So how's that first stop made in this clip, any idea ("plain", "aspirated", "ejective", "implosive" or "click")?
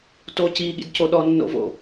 plain